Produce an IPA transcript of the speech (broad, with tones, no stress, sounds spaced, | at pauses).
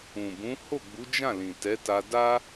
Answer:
ũ˨ b ũ˨˦ h o˦˨ ɡ͡b u˨˦ d͡ʒ ã˦˨ l ĩ˨ t ɛ˨˦ t a˧ d a˦